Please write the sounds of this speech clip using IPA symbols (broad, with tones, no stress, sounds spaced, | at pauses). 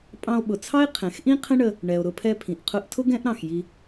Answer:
pʼ ɑ̃˧ o̯ ɓ ʊ˩ t͡sʰ ɑ˥ e̯ qʰ ɛ̃˩ x ʔ ĩ˥ qʰ ə̃˥ ɳ ə˧ | ɳ ɛ˩ o̯ ɾ ʊ˧ pʰ ɛ˧ pʰ ĩ˩ ʔ qʰ ʊ˧ ʔ tʰ ʊ˥ ɡ ɛ̃˥ ʔ ɾ ɑ̃˩ x j i˧